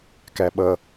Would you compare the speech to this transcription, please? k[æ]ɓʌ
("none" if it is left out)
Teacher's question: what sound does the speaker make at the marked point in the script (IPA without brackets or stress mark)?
æ